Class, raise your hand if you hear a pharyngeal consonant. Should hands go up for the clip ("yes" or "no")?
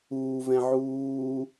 yes